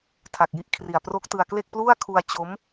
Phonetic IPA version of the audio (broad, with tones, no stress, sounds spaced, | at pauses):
tʰ a˨˩ k̚ j i˦˥ ʔ kʰ r i˨˩ a̯ p r o˦˥ k̚ t ɯ˧ a̯ k l e˥˩ k̚ p l u˥˩ a̯ kʰ u˧ a̯ t͡ɕ o˦˥ m